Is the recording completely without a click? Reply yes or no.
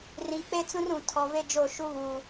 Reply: yes